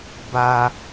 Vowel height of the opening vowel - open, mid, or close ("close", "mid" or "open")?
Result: open